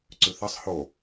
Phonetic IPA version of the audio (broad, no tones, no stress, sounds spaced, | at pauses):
ǀ ʉ θ ɐ sˤ h o